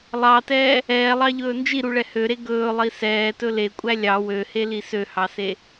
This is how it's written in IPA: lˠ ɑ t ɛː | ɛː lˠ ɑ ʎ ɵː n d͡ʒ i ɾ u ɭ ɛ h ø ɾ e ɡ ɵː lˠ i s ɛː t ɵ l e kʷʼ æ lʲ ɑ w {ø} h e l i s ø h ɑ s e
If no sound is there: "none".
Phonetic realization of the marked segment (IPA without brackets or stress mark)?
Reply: ø